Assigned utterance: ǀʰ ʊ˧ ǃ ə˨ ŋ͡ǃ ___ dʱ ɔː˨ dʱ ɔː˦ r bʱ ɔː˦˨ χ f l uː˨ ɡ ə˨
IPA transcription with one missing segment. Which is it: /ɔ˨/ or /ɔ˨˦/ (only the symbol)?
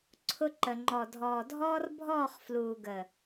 ɔ˨